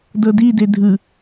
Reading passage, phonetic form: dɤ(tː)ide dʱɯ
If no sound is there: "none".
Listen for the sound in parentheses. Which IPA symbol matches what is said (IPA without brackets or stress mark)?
d